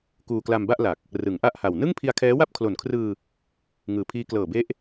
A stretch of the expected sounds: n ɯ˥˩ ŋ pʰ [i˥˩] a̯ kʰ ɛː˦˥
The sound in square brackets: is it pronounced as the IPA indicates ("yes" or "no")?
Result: no